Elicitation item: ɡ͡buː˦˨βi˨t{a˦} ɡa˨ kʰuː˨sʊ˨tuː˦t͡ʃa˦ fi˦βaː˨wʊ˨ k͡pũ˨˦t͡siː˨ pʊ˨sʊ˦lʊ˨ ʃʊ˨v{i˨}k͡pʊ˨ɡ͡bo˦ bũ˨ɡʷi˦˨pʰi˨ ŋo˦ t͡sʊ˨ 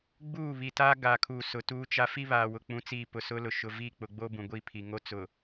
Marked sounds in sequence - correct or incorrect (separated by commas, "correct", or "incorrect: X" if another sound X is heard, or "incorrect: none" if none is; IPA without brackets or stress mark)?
incorrect: aː˦, incorrect: i˦˨